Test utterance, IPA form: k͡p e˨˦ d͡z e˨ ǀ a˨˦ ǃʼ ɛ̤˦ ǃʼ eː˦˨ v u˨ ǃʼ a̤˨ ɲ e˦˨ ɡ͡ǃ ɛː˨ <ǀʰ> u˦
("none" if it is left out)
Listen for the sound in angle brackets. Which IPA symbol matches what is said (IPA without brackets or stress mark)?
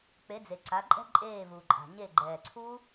ǀʰ